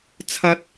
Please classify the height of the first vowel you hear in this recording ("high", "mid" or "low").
low